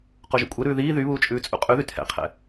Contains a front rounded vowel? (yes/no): yes